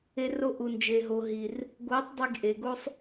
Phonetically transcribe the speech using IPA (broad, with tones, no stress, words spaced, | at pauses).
e˧ro˧ ʔu˨nd͡ʒe˨ ɦo˨ɦi˨r | ɡo˨˦tˤ dˤi˧ɡ ʔe˨ɡo˦sˤ